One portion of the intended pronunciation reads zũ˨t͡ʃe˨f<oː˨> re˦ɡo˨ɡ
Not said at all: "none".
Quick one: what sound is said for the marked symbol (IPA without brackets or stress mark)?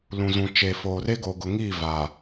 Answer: oː˨